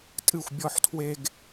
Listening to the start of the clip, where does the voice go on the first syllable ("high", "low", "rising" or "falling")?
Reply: falling